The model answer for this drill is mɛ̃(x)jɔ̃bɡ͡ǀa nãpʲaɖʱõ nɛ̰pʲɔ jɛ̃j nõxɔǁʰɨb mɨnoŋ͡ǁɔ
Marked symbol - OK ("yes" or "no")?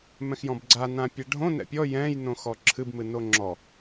yes